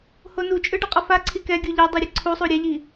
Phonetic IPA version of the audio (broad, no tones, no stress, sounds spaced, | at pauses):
h o n u t͡ʃʼ ɯ ɖ ʌ qʼ ʌ f a ǀʰ i k ɛ ɡʲ u ʎ ɛ dˤ i ɾʲ ʌ ǀʰ u sˤ u ɾʲ ɛ ʎ i